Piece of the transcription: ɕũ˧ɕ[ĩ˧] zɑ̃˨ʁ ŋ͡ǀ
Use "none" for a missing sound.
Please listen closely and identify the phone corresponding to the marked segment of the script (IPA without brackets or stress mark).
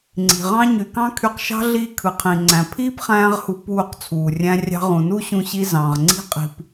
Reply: i˧